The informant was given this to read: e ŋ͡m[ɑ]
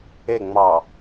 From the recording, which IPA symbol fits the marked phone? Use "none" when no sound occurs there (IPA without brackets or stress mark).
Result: ɑ